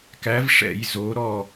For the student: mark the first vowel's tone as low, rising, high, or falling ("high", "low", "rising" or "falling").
rising